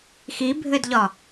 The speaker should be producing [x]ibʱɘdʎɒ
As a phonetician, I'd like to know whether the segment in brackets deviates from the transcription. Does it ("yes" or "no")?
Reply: no